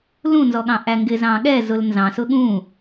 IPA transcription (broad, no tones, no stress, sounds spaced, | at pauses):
l ũ n z ɔ ɠ ɑ̃ ʔ æ ŋ ɡ ɪ z ɑ̃ ɠ ɛ z ʊ l n z ɑ̃ s ʊ ɠ ũ